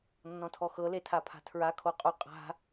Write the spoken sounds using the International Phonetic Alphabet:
nː ɔ̃ tʰ ɔ x ɤ l e tʰ a pʰ a̤ tʰ ɹ a kʰ o qʼ u qʼ a̤

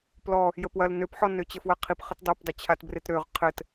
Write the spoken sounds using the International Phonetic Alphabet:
p l ɔ | j ə p w ɐ l n ø p ħ ɔ n ø t͡ɕ ə f w ɐ qʰ i p χ ə t dˤ ø p dˤ ø t͡ɕʰ a t b r e t ɾ ø ʁ qʰ ɘ t

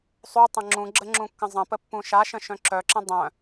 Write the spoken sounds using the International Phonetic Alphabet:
sˤ u tˤ ə̃ ŋ͡ǁ ũ ɡ͡ǁ ə ŋ͡ǁ ũ kː ə̃ zˤ ə̃ p ə pː ũ ʃ a ʃ ə̃ ʃ œ̃ ǁ œ ǁ ə̃ dˤ œ̃

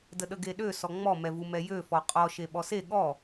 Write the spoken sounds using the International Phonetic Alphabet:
d ə ɗ ə ɡ e ɗ ø s ɔ ŋ͡m ɔ m ɛ v u m ɛ j ø f ɔ qʼ ɔ ʃ e ɓ ɔ s e ɠ ɔ

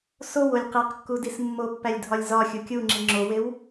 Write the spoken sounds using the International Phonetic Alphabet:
s o w o lʲ q e q kː u d i s mː o pː æ lʲ dʱ ɒ lʲ z ɒ xʲ u kʲ u ŋ͡ǁ i ŋ͡ǁ o w e w

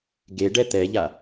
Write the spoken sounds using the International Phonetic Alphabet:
ɡ e ɖ ɛ t̪ ɛ ʎ a

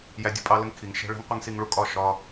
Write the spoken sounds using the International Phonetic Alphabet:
j æ˦ dʲ u˦ pʼ ɑ˦ l ə˦ ŋ kʰ i˨ ŋ ʃ ɛ̤˦ ɭ ɛ̤˦ ŋ qʷ ɪ˦ ŋ s i˦ ŋ ɭ u˦ kʼ ɒ˦˨ ʃ ɒ˦

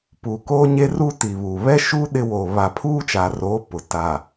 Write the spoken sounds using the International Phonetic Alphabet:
p uː˨ k oː˦ ɲ e˦ r uː˦ t i˨ β uː˨ β ɛ˦ ʃ uː˦ ɗ ɪ˦ w oː˨ β a˨ pʰ uː˦ t͡ʃ a˨ r oː˨˦ p ʊ˨ t a˨

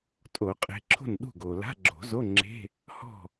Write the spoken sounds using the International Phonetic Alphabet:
tʼ o˨˩˦ qʼ e̤˨˦ ǁʰ o̤˥˩ n ɗ ṳ˥˩ ɡ o˩ l a̤˧˥˧ ɡ͡ǁ o̤˨˩˦ z o˧˥˧ ŋ͡ǁ e̤˧˥˧ | h ɔ̤˥˩

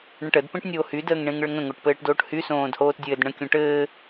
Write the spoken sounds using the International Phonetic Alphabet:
ɳ ə̃ ʈ ə d p ẽ ʈ nʲ oː h y d əː ŋ ɳ ẽ ŋ ɭ ə ŋ ə̃ ŋ o ʈ p ɘː ʈ d oː ʈ h y s õː d h oː t dʲ ɘː d ɳ ə̃ kʲ õ ʈ ɘː

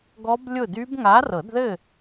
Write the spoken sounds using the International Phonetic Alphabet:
ɡ ɔ˦˥ b lʲ ʊ˥˨ d y˦˥ b ŋ a˨˥ r ɤ˨˩˦ d ð ɘ˥˨

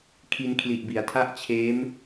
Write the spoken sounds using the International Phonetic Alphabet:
kʰ i˧ n kʰ l i˨˩ ʔ b i˩˦ a̯ tʰ a˥˩ ʔ t͡ɕʰ eː˦˥ m

